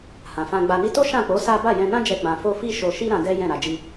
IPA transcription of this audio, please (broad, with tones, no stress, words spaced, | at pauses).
hã˨fã˧ɡ͡ba˧ni˦ to˦ʃã˦˨k͡po˨˦ sa˦ ba˦˨jɛ̃˧nã˦d͡ʒɛ˧ ɡ͡bã˧fo˦ fi˦ʃo˧ʃi˦ ɾã˧ dɛ˦jɛ̃˦˨ ɾa˧d͡ʒi˦